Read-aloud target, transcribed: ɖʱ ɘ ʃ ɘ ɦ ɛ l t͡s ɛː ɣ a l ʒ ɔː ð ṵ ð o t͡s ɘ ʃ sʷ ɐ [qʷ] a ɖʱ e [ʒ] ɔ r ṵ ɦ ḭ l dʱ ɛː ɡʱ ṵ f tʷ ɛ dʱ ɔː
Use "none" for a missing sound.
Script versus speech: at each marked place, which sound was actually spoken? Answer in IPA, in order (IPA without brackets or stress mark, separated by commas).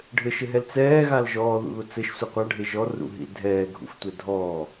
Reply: qʷ, ʒ